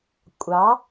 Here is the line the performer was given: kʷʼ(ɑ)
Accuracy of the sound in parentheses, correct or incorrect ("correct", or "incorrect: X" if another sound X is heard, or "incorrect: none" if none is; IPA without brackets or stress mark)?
correct